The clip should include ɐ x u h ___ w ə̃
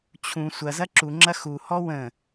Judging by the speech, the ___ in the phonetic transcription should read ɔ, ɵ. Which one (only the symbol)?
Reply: ɔ